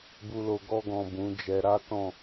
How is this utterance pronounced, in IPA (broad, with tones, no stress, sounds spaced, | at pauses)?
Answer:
b u˨ l o˨ ɡ ɔ˧ ɡ ɔ̃˨ b ũ˨˦ d͡ʒ ɛ˧ ɾ a˦ t ɔ̃˦˨